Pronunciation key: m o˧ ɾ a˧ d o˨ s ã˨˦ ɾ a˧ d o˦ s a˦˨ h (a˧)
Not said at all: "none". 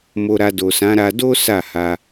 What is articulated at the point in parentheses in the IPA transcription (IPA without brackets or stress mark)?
a˧